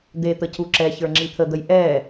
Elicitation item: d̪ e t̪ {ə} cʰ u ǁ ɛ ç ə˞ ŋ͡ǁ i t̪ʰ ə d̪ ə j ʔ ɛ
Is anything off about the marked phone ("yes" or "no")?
no